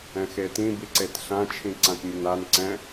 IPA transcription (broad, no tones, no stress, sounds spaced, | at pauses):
ɛ̃ x e t ĩ b i ǀ e t ɬ ã t͡ʃʰ ĩ ǀ ã t mʲ ə n a n ǀ ɛ̃